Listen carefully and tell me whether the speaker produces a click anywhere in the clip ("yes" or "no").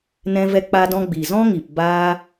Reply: no